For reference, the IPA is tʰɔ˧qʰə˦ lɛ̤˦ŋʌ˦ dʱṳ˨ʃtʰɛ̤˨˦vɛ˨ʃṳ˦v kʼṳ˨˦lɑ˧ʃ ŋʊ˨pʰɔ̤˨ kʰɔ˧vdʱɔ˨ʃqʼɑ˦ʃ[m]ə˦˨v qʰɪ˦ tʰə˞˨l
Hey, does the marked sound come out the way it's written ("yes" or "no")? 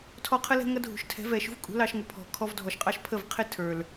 no